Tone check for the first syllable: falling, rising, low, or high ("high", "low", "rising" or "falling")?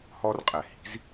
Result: high